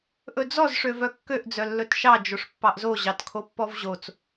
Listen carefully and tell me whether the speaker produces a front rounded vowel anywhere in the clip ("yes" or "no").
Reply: yes